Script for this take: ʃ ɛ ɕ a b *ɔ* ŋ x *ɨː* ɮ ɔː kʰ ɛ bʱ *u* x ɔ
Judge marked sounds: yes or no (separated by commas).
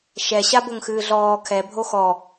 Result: no, yes, no